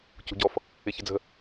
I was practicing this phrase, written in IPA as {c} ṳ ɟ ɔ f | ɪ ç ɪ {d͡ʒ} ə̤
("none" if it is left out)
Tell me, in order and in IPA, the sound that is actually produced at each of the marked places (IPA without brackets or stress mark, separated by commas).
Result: c, d͡z